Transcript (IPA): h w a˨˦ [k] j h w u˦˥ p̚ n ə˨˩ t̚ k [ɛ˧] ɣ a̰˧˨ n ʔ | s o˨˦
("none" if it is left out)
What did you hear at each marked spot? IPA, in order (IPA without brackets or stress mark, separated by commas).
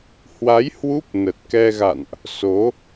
none, ɛ˧